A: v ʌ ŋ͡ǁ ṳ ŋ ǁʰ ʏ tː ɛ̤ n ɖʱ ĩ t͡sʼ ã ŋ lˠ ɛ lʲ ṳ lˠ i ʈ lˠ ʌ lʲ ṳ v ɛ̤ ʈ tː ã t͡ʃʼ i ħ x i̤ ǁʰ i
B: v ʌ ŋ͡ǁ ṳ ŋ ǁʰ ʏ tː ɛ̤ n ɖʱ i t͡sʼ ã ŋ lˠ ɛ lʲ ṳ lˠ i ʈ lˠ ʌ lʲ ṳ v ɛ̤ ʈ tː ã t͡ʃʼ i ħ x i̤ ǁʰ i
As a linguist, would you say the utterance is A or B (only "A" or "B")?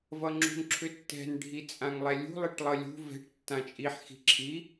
B